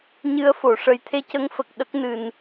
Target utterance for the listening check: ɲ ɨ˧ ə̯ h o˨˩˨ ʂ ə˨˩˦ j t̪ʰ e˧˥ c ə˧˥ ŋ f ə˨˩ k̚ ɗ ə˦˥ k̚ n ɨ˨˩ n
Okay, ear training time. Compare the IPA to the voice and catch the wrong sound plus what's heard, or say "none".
h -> f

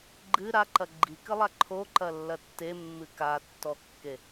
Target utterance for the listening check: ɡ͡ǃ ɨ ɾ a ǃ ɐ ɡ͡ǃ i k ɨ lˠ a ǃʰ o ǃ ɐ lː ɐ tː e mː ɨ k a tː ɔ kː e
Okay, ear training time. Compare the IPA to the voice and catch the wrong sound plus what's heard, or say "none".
none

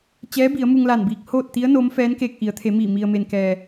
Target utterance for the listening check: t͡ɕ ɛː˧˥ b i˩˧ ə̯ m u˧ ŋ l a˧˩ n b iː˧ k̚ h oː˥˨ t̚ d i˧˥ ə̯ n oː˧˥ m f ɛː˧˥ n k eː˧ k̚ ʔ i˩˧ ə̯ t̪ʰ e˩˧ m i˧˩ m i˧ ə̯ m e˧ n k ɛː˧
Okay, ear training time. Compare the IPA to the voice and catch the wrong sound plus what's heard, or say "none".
d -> t̪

